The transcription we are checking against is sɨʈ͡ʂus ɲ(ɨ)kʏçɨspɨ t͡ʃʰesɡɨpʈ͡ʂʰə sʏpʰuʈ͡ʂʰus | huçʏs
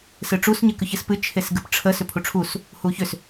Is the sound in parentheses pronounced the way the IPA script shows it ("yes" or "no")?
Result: yes